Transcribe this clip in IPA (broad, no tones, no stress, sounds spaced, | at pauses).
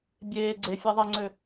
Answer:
bʲ eː ɡ͡ǀ e fʲ a ðˤ ɛ ŋ͡ǀ ø